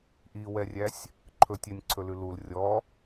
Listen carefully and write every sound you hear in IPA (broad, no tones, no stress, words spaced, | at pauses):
ʔiwɛrʲæsʲ | ǃʰɵtʲɛnʲǀʰɵlʉ lul rʲɔ